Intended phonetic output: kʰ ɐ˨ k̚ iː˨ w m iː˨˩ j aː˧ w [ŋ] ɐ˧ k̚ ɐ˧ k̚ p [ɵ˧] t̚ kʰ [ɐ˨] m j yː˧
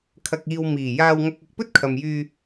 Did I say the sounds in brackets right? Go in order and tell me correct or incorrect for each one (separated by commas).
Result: correct, incorrect, correct